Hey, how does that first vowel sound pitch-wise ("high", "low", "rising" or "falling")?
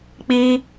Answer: high